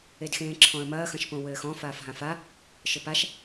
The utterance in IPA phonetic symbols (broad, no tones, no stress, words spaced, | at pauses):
edxẽːǁʰɔ̃ə̯mɐː xɐ̃ʃpõwɘːxɔ̃ faːfɦãfa | ʃɘpaʃ